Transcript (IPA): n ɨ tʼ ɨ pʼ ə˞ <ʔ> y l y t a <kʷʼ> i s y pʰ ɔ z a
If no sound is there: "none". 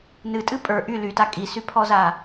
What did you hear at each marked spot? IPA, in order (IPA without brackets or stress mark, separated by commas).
ʔ, kʼ